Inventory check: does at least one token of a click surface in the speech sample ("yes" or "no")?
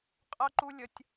yes